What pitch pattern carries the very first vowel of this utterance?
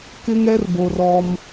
high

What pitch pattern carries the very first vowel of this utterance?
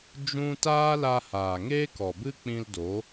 high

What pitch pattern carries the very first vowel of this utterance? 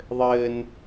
high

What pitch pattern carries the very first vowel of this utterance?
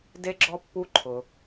high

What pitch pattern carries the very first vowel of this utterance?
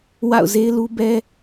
falling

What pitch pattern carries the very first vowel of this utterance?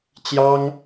high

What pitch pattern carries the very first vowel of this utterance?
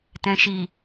low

